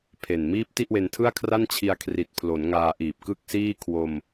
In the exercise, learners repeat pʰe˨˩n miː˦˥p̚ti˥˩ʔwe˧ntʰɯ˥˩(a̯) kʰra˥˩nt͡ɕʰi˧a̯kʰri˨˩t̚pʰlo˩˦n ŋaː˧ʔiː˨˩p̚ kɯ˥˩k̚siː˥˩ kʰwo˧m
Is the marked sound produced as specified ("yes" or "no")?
yes